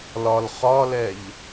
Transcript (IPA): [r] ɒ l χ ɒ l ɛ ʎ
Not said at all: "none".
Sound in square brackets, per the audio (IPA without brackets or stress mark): l